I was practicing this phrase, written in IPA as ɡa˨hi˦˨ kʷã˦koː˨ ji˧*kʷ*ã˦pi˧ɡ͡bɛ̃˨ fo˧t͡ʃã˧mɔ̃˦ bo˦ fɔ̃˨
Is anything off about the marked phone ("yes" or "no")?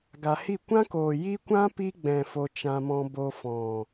no